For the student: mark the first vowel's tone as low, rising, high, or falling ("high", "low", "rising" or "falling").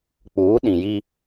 rising